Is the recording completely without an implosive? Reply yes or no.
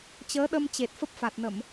no